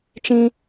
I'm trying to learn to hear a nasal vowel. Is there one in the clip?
yes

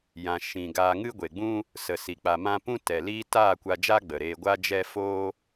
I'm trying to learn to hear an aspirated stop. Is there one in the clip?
no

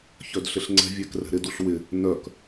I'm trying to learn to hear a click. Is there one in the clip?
yes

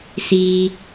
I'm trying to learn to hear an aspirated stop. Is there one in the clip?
no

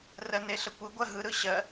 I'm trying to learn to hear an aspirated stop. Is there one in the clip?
no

